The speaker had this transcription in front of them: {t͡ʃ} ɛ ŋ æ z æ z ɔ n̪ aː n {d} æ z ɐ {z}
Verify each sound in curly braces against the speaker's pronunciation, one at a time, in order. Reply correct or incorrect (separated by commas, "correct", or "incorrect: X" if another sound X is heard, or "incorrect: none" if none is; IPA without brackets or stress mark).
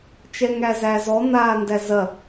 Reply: correct, correct, incorrect: none